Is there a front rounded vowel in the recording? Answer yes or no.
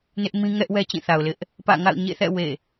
no